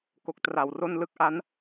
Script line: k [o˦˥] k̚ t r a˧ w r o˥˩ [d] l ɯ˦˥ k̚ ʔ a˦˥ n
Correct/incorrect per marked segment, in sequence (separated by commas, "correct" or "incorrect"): correct, incorrect